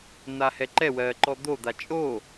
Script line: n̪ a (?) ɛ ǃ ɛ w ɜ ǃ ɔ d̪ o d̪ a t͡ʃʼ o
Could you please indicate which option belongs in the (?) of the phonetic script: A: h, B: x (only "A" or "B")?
A